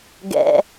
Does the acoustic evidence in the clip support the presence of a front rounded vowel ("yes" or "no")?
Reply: no